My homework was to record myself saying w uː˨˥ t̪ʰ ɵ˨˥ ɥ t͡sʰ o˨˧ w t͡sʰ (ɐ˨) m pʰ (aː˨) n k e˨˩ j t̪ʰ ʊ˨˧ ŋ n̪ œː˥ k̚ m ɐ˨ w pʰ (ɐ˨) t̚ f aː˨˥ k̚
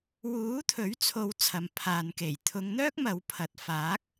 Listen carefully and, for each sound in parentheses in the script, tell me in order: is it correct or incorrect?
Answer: correct, correct, correct

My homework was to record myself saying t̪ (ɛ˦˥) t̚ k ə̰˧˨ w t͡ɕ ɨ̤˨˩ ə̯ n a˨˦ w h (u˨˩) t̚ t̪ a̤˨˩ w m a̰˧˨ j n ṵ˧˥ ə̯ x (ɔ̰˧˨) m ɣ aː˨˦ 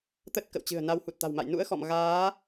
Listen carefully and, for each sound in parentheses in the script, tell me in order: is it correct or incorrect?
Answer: incorrect: ə˦˥, correct, correct

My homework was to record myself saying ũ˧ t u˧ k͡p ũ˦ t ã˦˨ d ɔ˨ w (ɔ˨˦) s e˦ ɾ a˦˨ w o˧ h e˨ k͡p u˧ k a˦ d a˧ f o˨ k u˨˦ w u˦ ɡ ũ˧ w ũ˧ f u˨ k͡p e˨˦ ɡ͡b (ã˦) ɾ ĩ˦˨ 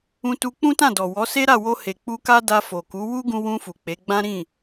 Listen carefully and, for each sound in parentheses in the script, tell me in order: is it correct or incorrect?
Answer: correct, correct

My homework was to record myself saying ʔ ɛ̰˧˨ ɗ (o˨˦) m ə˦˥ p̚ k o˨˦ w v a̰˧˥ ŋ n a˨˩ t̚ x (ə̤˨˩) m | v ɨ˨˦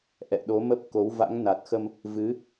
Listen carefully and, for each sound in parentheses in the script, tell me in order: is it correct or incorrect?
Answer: correct, incorrect: ə˧

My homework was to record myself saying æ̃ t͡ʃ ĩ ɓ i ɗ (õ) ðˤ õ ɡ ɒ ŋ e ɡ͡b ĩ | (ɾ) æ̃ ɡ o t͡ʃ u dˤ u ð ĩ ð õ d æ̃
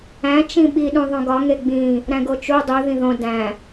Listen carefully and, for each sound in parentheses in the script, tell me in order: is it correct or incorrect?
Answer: incorrect: ũ, correct

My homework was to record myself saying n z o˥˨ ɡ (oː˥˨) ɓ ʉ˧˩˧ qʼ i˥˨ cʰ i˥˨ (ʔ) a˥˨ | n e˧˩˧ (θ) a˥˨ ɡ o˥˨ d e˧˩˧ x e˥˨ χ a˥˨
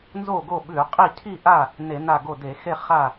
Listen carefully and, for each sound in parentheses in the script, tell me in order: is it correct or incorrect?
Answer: incorrect: o˥˨, correct, incorrect: n

